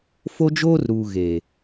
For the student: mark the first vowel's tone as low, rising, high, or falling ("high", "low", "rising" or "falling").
high